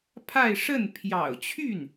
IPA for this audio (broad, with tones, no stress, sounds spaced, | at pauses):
pʰ a˥˧ ɪ̯ ʂ ə˥˩ n pʰ j ɑ̰˨˩ ʊ̯ t͡ɕʰ y˥˩ n